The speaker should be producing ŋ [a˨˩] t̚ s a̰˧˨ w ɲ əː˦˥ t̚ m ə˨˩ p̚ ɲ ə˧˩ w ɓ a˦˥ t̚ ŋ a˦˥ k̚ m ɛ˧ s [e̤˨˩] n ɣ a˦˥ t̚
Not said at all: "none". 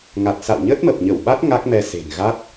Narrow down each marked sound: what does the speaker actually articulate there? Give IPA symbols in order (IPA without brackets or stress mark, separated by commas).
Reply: a˨˩, e̤˨˩